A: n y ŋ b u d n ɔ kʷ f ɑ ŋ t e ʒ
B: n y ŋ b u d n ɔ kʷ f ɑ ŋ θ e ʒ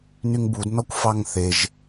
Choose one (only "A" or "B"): B